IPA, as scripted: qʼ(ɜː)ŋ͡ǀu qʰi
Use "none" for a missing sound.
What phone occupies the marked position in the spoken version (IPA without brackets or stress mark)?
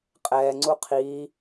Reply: ɛː